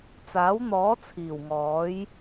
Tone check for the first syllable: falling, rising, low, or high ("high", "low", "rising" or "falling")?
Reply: rising